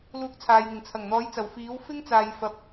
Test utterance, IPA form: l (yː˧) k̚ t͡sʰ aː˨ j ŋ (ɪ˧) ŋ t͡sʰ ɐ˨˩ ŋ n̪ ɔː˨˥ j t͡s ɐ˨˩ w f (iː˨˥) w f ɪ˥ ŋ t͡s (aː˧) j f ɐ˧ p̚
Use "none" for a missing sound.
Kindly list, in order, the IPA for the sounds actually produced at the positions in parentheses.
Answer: uː˧, ɪ˨˩, iː˨˥, aː˧

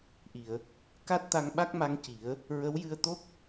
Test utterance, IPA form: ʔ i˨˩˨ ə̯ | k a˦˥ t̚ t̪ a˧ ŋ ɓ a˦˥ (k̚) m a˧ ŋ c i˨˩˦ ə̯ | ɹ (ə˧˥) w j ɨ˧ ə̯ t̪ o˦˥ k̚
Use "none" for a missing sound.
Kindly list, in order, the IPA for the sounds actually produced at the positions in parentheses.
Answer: k̚, ə˧˥

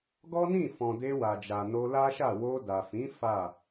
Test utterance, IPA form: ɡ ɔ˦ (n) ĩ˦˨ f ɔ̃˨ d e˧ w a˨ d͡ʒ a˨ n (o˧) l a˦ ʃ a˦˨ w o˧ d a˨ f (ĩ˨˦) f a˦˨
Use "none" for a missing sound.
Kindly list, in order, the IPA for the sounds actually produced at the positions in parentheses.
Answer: n, o˧, ĩ˨˦

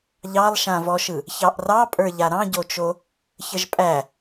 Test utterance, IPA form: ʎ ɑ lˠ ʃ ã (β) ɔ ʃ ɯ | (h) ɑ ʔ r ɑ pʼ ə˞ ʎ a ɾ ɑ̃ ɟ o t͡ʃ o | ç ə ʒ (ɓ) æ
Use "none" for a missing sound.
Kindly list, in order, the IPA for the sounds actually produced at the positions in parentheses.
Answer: v, ç, pʼ

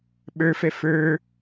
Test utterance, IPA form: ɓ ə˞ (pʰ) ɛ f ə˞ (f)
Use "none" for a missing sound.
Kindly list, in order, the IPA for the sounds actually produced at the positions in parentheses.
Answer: f, none

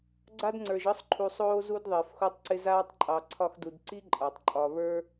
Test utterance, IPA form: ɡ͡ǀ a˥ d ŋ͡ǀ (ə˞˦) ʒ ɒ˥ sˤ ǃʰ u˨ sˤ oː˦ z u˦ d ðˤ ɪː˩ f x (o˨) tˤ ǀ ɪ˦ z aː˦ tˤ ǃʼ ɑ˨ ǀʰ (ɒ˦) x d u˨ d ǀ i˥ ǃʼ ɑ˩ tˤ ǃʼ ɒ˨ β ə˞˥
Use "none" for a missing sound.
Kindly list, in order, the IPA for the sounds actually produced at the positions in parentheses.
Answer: ə˞˨, o˦, ɒ˦

